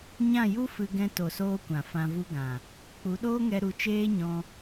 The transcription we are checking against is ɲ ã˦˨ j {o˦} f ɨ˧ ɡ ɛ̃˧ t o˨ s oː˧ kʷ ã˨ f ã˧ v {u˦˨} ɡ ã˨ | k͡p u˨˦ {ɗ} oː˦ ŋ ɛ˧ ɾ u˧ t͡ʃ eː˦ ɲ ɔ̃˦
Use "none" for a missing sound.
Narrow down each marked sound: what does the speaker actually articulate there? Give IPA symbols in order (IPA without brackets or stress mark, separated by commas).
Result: u˦, u˦, ɗ